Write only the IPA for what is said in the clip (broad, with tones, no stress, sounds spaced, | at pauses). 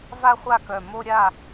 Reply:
v a˥˧ χʷ a˥˩ k œ˨˩ m o˥˧ ɾʲ a˥˩